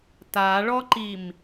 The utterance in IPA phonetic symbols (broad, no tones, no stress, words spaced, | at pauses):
taɭɔǃim